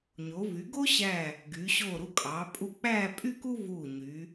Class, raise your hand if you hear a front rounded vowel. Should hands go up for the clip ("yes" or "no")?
yes